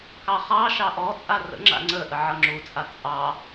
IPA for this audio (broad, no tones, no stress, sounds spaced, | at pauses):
k ɑ χ ɑ ʃ ɑ ʔ ɔ t͡sʼ a r ə̰ ŋ͡ǁ a̰ ŋ͡ǀ ə ʔ ə ʕ ʌ ŋ͡ǁ u t͡sʼ a t͡sʼ ɑ